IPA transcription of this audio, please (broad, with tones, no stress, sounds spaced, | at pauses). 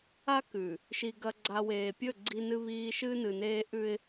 a˦ k ʉ˨ | ʃ i˨ ɡ ɐ˨ ɡ͡ǀ a˨ w eː˨ pʲ ɵ˦˨ ɡ͡ǀ i˦ n ɨ˦ β iː˦ ʃ ɨː˦ n ɨ˨ n eː˦ ʔ ʉ˦ ɪ̯